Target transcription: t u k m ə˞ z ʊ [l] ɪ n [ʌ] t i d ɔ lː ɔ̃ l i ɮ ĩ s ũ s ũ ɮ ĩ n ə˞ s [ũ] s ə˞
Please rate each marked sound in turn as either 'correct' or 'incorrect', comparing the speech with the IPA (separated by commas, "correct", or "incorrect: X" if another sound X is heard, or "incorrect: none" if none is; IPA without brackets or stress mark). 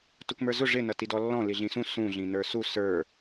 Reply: incorrect: ʐ, correct, incorrect: u